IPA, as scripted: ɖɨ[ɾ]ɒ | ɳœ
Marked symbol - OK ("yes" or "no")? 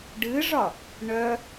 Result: no